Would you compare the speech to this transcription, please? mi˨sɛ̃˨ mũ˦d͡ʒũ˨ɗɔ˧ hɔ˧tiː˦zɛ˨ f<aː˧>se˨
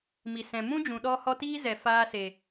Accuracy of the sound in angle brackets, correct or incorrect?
correct